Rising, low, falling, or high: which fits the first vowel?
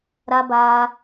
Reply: high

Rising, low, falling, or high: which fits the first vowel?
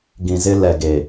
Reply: low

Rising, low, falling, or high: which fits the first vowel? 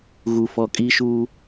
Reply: low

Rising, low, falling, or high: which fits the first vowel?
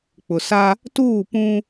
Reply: low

